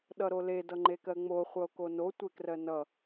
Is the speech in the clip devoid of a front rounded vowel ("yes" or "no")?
yes